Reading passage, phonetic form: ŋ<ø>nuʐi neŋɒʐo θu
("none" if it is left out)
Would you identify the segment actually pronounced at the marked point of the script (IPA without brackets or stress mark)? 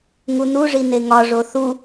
u